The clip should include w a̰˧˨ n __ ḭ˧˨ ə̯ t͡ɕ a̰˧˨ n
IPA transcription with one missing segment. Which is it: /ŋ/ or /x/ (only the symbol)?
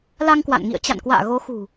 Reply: ŋ